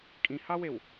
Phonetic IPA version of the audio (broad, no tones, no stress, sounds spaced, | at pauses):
kʼ ĩ h ɑ w e w